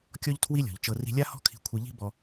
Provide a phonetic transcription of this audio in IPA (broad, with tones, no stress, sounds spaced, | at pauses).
kʲ ɔ˥ ʎ tʰ w i˥ lʲ ɔ̤˩ ʎ t͡ʃ ɤ˧ r i̤˧ lʲ a˥ h ɔ̤˥ kʰ i̤˧ kʷʰ i˧ ʎ i̤˥ b ɔ˧